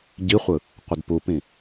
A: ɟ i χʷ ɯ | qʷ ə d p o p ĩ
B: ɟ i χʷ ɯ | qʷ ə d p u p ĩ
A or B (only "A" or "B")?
B